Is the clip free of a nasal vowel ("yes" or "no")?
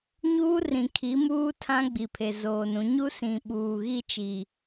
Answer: no